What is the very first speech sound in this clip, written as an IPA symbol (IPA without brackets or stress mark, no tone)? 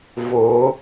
v